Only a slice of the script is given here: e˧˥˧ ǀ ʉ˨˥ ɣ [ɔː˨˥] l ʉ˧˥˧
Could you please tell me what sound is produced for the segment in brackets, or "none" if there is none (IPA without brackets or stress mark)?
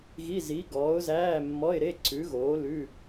oː˨˥